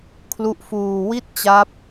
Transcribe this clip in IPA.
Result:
kʰlu˦˥ʔfuː˧ wi˥˩t̚t͡ɕa˦˥p̚

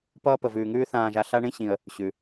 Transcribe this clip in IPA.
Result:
pʌː˦pə˨vʉː˨ŋʉː˦ θãː˨ʒa˨ ɬa˦ɳĩ˦ɕĩ˨ə̯ | ɕʉ˩

